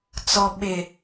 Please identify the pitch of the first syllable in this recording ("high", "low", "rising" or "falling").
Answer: low